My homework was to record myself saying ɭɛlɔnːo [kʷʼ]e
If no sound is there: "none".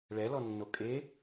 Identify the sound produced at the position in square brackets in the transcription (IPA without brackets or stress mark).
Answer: kʼ